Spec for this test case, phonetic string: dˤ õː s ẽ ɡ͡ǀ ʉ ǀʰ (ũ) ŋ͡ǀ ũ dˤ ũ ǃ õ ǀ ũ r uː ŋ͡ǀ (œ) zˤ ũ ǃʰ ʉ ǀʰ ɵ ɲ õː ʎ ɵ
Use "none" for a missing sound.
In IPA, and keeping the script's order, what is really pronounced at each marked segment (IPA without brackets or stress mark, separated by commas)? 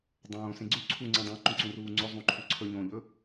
u, ɵ